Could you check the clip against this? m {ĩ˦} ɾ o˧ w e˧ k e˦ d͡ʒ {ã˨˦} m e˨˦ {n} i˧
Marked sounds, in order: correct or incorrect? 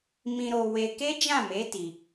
incorrect, incorrect, incorrect

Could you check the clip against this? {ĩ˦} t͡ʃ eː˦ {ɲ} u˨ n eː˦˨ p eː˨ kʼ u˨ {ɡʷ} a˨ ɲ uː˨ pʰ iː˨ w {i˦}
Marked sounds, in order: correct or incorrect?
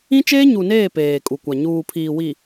correct, correct, incorrect, incorrect

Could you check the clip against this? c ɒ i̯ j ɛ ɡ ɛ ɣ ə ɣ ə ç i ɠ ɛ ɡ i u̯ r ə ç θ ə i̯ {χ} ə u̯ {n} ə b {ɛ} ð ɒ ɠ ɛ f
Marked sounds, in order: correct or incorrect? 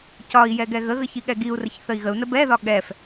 incorrect, correct, correct

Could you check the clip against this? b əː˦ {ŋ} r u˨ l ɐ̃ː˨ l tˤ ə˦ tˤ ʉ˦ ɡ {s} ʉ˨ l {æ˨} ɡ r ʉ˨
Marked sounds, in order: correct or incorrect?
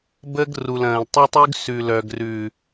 incorrect, correct, incorrect

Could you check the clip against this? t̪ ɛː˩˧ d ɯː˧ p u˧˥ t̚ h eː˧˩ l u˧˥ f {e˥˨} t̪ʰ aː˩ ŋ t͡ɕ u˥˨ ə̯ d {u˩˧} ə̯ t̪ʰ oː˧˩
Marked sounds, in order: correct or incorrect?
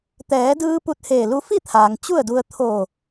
incorrect, incorrect

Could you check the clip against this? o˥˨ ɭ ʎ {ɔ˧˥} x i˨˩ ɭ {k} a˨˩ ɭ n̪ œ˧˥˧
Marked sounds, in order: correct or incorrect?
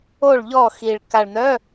incorrect, correct

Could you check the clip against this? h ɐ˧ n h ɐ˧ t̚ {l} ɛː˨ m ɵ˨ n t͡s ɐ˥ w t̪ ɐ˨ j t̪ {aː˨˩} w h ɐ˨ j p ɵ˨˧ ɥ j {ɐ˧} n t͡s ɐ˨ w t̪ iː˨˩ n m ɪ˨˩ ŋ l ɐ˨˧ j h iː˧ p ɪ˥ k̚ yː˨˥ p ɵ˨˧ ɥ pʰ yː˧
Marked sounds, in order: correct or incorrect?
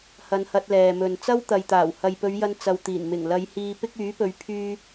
correct, correct, correct

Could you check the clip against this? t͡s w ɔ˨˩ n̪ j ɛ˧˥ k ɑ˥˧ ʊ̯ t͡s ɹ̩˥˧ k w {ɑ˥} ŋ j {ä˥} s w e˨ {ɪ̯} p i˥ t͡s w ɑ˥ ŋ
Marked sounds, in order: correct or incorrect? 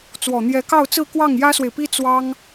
incorrect, correct, correct

